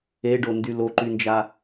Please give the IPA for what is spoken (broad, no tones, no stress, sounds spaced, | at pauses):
e ɖ o n d y l o ǃ y n d͡ʒ a